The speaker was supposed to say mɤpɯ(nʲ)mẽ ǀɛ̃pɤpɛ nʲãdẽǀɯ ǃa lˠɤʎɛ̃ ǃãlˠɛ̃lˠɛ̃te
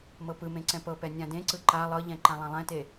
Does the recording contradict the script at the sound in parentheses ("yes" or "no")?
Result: yes